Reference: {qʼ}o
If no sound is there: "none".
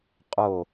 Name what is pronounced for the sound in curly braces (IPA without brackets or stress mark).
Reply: qʼ